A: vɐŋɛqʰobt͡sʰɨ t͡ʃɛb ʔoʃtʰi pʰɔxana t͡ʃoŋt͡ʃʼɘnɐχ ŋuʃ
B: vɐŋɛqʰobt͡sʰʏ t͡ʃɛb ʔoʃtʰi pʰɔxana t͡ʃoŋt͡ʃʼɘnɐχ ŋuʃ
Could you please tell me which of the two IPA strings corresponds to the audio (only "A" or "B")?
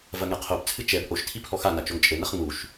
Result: A